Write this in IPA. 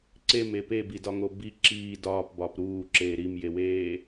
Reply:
ǀeme pebidɒŋo bi ǁiː dɒːpbɒːp ɾuːǁeː ɾimjeweː

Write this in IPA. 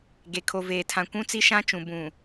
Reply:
ɡe˨kʰo˨veː˨tʰã˨ kʷũ˦t͡si˦ʃã˦t͡ʃũ˨ bũ˨

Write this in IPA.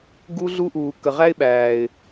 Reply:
ɡu˦ɮu˦ʔuː˨ kə˨ʁæ˦ɪ̯ ɓæː˨ɪ̯

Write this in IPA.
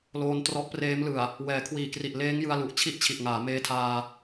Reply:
loː˧ntrɔ˦˥ʔpreː˦˥m lɯ˨˩a̯ | wɛː˩˦kʰwiː˨˩kri˨˩ʔ leː˦˥ŋjɯ˧a̯lu˨˩ʔ t͡ɕʰi˥˩ʔt͡ɕʰi˨˩ʔŋaː˩˦ meː˧tʰaː˧

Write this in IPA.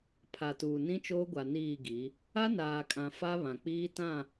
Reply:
pʰa˨tuː˨ nĩ˦t͡ʃoː˦ɡʷa˨ niː˦˨ɡi˨˦ | a˦naː˨kʼã˨ fa˦ βã˨k͡piː˦tã˦˨

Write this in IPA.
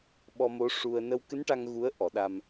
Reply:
ɓɔ˧mo˧˥ʂu˧ə̯ nə˧wkɨ˧˥nʈa˧ŋ ɣu˧˥ə̯ ʔɔ˨˩˦ɗa˧m

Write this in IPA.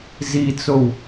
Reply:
zit͡sow

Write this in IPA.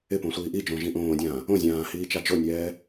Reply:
ɪpõ sʷiːʔid͡ʒõ ʒĩʔõːdʲãː | õzʲãː hiːt͡ʃad͡ʒonʲɛː

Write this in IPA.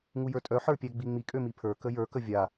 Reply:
ŋujə˞tʼœ ħə˞pʲæɡ͡biŋ͡mi kʼømipʰə˞ kəjə˞ kəvʲa

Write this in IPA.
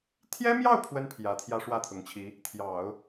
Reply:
t̪ʰjɛ˥mjɑ˥˩ʊ̯ pʰwə˥npʰjä˨˩ t̪ʰjä˥ʂwä˥˩t̪ʰʊ˨˩ŋt͡ɕʰi˧˥ | t̪ʰjɑ˨˩˦ʊ̯

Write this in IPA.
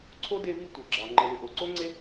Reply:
ǀʰo˥de˦ vi˦tʷe˩ ɡ͡ǁɑ˩ ŋ͡ǃe˨lʏ˨ ʔo˩ǀo˥ŋ͡ǀe˥

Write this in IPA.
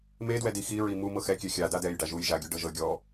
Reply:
medwɛdi xiɹi mu mɤxɛkʲɛ xʲada dɛjɖa ʒuj ʒaɡʲuɖɤʒɤ ɡʲɔ

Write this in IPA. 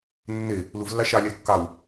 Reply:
nːe | luvlːɑ ʃɑlʲɑl kːɑw

